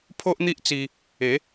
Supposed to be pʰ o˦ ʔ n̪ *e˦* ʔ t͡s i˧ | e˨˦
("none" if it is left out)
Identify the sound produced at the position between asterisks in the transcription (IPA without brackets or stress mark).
i˦